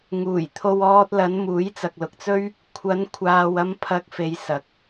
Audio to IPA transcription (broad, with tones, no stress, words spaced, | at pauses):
ŋuː˨˩jt̪ʰo˧w ɔː˧t̚lɐ˨˧n muː˨˥jt͡sɐ˨k̚lʊ˨k̚t͡sɵ˥ɥ | kʷʰɐ˨˧nkʷʰaː˨wɐ˧m pʰɐ˧k̚fe˨˧j sɐ˨k̚